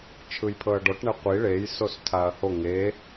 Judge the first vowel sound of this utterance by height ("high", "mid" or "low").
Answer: high